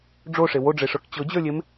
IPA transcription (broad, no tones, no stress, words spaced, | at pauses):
ɖ͡ʐoʂe woɖ͡ʐeʂə˞k t͡ɕɤd͡ʑə˞lʲem